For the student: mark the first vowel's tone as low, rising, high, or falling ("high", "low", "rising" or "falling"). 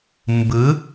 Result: rising